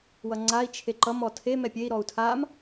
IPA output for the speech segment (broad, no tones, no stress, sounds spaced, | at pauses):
w ʌ ŋ͡ǀ a i̯ t͡ʃʰ e ǃ ʌ m ɔ tʰ e m ɛ pʲ e i̯ ɾ ɔ u̯ tʰ a m